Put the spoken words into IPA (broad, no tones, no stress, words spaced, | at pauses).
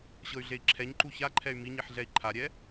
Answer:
ɕɤy̯ɮei̯ǁʰɛɲǃu çaǃʰɛy̯ miɲiħ ɮɛi̯ǃʰaɾʲɛ